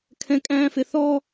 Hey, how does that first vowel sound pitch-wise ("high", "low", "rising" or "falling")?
high